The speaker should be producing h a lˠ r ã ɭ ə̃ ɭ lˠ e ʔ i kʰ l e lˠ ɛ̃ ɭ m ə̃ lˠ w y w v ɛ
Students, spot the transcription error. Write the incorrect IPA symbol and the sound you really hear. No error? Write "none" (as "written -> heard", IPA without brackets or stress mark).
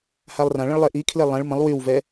none